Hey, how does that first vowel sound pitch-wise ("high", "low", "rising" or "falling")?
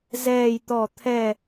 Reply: falling